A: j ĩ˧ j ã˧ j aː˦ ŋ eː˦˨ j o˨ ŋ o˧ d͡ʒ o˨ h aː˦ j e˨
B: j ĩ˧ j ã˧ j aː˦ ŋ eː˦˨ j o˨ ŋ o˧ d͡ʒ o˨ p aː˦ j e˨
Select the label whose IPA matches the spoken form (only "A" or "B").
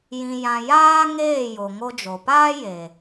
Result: B